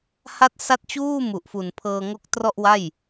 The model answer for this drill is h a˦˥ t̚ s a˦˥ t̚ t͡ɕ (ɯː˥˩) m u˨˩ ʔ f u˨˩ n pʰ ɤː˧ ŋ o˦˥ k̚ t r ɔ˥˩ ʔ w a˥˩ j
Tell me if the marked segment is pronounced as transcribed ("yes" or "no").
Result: no